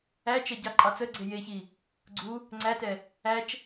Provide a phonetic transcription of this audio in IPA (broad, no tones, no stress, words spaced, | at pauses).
æt͡ʃɛ ɟɑǃʼɑt͡səɡ͡ǀe jeçi | ɡ͡ǀu | ŋ͡ǀætɛ | æt͡ʃ